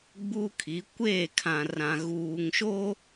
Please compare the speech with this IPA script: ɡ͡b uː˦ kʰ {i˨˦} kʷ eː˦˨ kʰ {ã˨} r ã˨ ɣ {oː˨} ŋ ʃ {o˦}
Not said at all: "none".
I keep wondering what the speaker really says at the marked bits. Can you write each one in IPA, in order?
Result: i˨˦, ã˨, uː˨, o˦

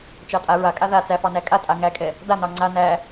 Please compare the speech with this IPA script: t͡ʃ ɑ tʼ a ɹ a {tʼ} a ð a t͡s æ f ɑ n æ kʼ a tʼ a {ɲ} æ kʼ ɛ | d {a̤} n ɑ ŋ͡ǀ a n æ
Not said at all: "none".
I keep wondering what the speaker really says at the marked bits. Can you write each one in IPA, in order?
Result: kʼ, ŋ, a

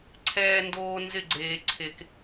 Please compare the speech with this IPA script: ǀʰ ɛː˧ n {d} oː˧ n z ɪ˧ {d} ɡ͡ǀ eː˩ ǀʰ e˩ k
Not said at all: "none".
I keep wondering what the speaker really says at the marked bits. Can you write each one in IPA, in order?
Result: d, none

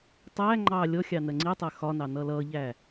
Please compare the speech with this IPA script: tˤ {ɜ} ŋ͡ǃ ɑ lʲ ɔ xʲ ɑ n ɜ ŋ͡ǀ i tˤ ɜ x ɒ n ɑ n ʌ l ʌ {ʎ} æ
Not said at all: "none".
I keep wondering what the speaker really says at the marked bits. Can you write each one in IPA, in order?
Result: æ, ʎ

